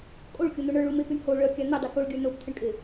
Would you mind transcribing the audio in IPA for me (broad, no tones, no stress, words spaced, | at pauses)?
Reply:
kʼoɭkʲon̪o ɳə˞ɭumepiɳ ho ɭœkʲa n̪edˤi koɭɡʲə˞ nopt̪ʰəɳkʼe